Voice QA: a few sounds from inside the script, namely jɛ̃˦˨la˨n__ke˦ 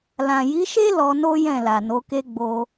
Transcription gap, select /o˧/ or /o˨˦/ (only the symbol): o˨˦